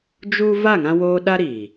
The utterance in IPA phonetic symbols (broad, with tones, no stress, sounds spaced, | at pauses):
d͡ʒ u˦ v a˦˨ ŋ ã˧ w oː˧ ɗ a˦ ɾ iː˨